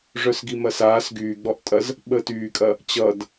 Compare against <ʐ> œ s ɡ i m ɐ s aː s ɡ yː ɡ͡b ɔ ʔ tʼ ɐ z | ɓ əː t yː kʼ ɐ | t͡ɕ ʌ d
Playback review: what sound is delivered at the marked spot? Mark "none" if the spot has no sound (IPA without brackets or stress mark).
ʐ